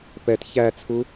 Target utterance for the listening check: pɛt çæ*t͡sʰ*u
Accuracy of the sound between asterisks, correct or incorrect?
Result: correct